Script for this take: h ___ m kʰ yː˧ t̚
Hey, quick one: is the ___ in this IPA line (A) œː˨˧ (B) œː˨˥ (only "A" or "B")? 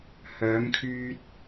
A